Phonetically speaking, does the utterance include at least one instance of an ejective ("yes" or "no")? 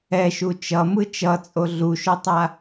yes